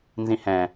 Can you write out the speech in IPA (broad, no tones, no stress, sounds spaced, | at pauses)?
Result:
n z ĩ h ɛ̃